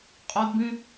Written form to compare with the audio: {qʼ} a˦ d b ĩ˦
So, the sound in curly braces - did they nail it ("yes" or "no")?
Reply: yes